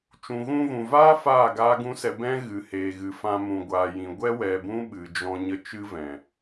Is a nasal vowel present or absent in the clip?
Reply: present